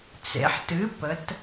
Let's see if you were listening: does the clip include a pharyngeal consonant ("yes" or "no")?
yes